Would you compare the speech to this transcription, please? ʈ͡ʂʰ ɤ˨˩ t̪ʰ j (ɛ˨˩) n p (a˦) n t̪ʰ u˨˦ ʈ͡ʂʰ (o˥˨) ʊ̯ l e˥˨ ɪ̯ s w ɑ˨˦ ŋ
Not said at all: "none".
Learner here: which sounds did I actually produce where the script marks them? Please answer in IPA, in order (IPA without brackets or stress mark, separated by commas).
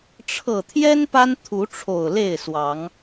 ɛ˦, a˦, o˨˩